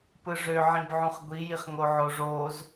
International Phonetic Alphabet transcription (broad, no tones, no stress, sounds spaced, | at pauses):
p ɯ ʐ ø ʕ ĩ b ʕ ũ χ ɡʷ i j i χ ŋ o ʕ o ʐ oː z